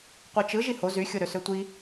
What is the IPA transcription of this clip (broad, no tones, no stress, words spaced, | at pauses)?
qʷit͡ʃɯ ʒiho zyxʲoɾø søtʷi